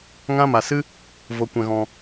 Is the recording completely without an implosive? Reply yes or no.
yes